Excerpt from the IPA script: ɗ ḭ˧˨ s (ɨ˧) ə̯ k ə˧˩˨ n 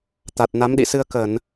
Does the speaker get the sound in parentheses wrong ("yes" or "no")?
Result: no